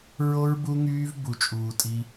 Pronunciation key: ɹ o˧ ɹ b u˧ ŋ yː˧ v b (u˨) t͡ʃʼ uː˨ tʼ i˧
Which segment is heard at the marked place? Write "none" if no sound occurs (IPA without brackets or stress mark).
u˨